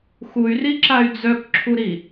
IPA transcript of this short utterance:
x u y̯ r i ǁ a y̯ d͡z œ k ǁʰ u ɾ i

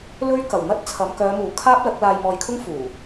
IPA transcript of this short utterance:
l ɵ˥ ɥ k ɐ˨˩ w n̪ ɐ˥ t̚ t͡sʰ ɐ˨˧ m k œː˨˧ m uː˨˩ kʰ aː˥ p̚ l ɐ˨˥ k̚ l aː˧ j m ɔː˧ j kʰ ʊ˥ ŋ f uː˨˩

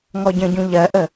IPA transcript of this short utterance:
ŋ ɔ ɟ ə̃ ɟ ũ ʎ ɜ ʔ ə

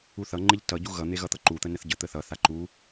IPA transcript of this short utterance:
u θ ʌ ŋ͡ǃ e ʎ t ʌ ɟ u ɣ ʌ n̪ e ɣ ʌ t̪ ʌ ǃ u t̪ ə n ə θ ɟ ə t̪ ə θ ʌ θ a ǃ u

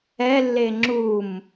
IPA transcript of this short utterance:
ɛ lː e ŋ͡ǁ u m

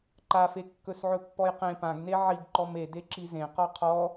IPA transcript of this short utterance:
ǃ a f e kː ɵ s ʕ ɵ pː ɔ j q ẽ p ã ɡ n e ʕ i ɡ ǃ ɔ m e d e ǁ i z ẽ q ɔ qʰ ɔ

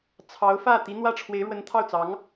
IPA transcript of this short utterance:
t͡sʰ ɑ˧˥ ʊ̯ f ä˥˩ t̪ i˧˥ n̪ w ä˥˩ ʈ͡ʂʰ w e˧˥ ɪ̯ ɻ w ə˧˥ n t̪ʰ ɑ˥˩ ʊ̯ t͡s ɑ˧˥ ŋ

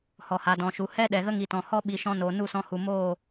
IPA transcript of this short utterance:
h ɔ˨ h a˨ d ɔ̃˨ ʃ u˨ h ɛ˦ ɗ ɛ˨ ɣ ə˦ ŋ i˨ t ɔ̃˨ h ɔ˦ ɓ i˧ ʃ ɔ̃˦ n oː˨ n u˦˨ s ɔ̃˧ h u˨ m oː˦˨

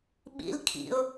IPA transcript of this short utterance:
ɓ ḭ l kʰ ḭ ʊ̯

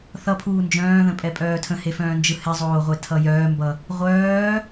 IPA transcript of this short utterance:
θ ʌ pʰ uː n d͡ʒ œ̃ː ð ə̃ pʼ ɛ pʼ œː tʰ ə̃ h e f œ̃ː n d͡ʒ ɯ h ɛ zˤ oː ʁʷ e tʰ ʌ j œː m b ʌ | ʁʷ œː

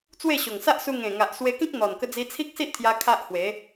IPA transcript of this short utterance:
t͡s w e˥˧ ɕ o˨˩ ŋ s a˦ ʔ s u˧ ŋ ẽ˨˩ ŋ a˨ ʔ s w e˧ k ĩ˦ k̚ n̪ ɔ˨˩ n k ə˧ d͡z i˧ t͡sʰ i˦ k̚ s i˦ ʔ t̪ʰ j a˧ kʰ a˦ ʔ h w e˨˦

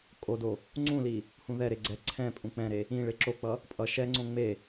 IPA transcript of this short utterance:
kʼ o d o | ŋ͡ǀ ũ l i | h ũ ð ɛ ɾ e ɡ͡ǀ ɛ ǀʰ ɛ̃ pʼ ũ k͡p ɛ̃ ɾ e | ĩ ɭ e ǁ o k͡p ʌ | pʼ ʌ ʃ ɛ ŋ͡ǀ õ ŋ͡m e

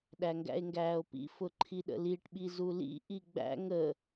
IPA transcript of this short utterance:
ɗ æ ŋ ɡ æ̰ e̯ ŋ ɡ æː o̯ p ḭ f ʊ ǃʰ i ɗ ə̰ l i ʈ ɓ i z u l ḭ ʔ i ɡ͡b æ̰ ŋ ə

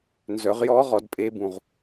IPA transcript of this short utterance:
n z œ˨˩˦ ʁ j ɔː˦˥ ʁ ɔ˨˩˦ d pʼ e˦˥ b ũ˨ ʁ

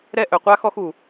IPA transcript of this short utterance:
ɾ ɛ˥ ʔ œ˧ qʷ a˥ x ɔ˥ x u˧

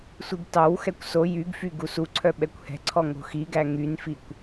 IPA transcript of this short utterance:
sʷ i ɡ t ɑ w x ɛ kʷ s o j y ɡ f y ɡ u s u ǀʰ œ ɓ ɛ kʷ h ɛ̤ ǀʰ ɔ ŋ o̤ x i ɡ æ ŋ y n f i kʷ

